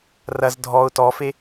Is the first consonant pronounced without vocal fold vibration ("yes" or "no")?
no